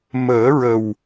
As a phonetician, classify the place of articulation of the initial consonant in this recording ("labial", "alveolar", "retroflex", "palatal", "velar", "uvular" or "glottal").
labial